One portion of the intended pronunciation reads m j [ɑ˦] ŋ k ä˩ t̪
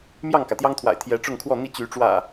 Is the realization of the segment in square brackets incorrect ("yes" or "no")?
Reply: yes